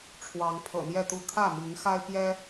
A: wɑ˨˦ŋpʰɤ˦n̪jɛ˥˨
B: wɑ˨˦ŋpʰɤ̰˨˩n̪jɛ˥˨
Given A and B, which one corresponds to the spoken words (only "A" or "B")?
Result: B